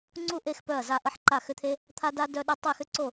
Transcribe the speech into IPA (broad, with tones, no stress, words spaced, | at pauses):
ŋ͡ǀu˥˨ʔe˥˨x pœ˥˨ɐ̯za˥˨ʔə˥ħ ǃa˥˨xʏ˥t̪ʰe˥ | t̪ʰa˥da˥ dœ˥ɗa˥ tˤi˥˨xʏ˥ǀo˥˨